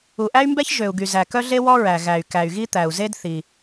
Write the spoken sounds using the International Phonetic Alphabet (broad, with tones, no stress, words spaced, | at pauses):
u˩ʔæ˥y̯mbɛ˥ç ʒø˩u̯ ɡy˩zæ˩ kœ˥ɮe˥ wɔ˥ɹæ˩ ɣæ˩y̯ kæ˩y̯ɣi˥t̪æ˩u̯ ze˥d θi˩